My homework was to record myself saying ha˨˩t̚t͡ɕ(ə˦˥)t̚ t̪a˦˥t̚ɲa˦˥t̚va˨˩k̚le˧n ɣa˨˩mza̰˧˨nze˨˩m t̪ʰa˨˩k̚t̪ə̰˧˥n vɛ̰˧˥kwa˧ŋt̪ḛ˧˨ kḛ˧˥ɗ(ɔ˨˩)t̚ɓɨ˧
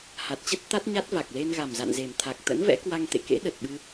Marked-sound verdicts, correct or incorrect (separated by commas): correct, incorrect